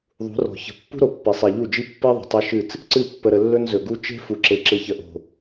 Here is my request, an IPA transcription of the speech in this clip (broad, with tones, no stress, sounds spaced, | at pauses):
ðˤ ṳ˨˦ r ɔ̤˨ ç ə̤˨ pː ṳ˦ ɾ o˨ pː i˨ sˤ i˨ ʎ u˦˨ d͡ʒ i˦ pː i˦ ðˤ ə̤˨ tˤ e˦ ʃ ɨ˦˨ t͡s | ǀ ɨ˦˨ pː ə˨ ɾ ə˨ lː ɵ˦ n z ɵ˨ ɡ u˦ t͡ʃ e̤˦ f u˨ ǁ e˨ ǁ ɨ˨ ç ə˨ ʔ o̤˨